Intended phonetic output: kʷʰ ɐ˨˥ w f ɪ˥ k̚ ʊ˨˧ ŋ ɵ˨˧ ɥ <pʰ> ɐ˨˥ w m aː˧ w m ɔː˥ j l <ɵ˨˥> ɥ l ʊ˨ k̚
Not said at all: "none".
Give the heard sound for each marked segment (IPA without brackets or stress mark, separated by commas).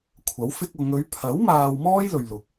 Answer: pʰ, ɵ˨